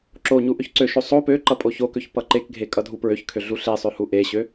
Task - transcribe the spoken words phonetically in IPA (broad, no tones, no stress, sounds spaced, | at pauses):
ǁ o ɲ u ʔ ø ç ǀ ø ʃ o sˤ o p ø ǃ ʌ pʼ o ç o k ø ç p ʌ ǃ e k ɡʱ e kʼ ʌ dʱ u p ɹ ø ç kʰ ø ɮ u ɬ e sˤ ø h u ʔ e ɕ ø